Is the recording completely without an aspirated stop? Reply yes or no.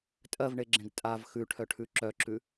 no